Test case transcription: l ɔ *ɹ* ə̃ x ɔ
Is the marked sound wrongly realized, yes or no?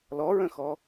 no